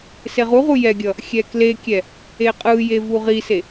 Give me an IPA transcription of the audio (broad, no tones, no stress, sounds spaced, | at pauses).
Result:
s e ʁ u ʁ u j ɛ ɡʲ ʌ | xʲ ɛ k l e kʲ ɛ | e qʼ ɯ j e v u ʁ i s e